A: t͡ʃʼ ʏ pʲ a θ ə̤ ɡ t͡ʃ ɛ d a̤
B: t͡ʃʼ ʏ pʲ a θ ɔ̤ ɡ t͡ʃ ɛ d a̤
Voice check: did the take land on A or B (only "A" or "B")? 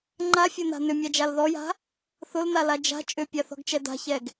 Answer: B